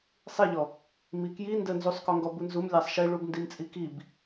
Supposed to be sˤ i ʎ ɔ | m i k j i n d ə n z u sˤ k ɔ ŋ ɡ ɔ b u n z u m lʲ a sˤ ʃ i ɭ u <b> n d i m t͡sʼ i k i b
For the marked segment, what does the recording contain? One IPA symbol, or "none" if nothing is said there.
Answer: b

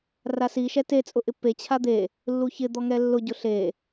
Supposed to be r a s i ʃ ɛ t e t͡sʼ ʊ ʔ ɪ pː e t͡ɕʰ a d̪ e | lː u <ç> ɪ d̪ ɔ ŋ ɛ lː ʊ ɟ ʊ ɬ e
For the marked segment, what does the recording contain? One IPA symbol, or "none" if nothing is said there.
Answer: ç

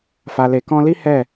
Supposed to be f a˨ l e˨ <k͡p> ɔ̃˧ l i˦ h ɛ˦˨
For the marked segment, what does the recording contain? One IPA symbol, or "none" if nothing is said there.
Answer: k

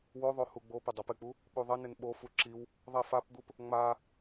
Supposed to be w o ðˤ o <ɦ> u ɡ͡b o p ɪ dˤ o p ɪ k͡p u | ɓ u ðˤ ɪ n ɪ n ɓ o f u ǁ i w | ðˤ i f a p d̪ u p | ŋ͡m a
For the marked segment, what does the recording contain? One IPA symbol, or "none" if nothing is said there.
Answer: h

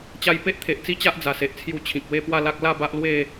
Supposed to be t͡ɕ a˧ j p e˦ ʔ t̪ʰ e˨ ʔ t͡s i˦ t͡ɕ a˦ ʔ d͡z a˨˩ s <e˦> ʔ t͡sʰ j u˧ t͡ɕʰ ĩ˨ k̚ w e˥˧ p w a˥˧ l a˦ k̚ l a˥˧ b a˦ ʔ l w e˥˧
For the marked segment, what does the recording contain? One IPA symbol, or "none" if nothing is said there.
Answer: e˨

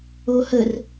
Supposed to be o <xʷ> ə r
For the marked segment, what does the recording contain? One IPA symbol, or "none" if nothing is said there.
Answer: h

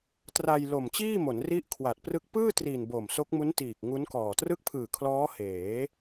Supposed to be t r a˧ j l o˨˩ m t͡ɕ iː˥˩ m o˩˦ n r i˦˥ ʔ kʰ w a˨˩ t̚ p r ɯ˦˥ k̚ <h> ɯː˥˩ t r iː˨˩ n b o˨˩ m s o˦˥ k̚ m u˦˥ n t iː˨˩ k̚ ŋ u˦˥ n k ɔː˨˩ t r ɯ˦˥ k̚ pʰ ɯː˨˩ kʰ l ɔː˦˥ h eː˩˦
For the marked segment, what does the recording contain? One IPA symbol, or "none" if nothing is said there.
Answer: p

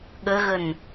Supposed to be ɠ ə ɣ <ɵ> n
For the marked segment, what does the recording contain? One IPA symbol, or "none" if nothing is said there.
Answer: ə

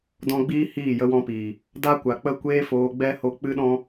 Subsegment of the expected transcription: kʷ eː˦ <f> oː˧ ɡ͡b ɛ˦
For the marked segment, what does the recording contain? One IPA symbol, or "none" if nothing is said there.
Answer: f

